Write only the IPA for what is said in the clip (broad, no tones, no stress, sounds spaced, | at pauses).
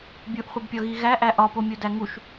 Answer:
bʲ u ʔ χʷ i b pʲ ɒ ɣ i ɣ æ ʔ æ ʔ ɒ p o mʲ o d æ ŋ u ʃ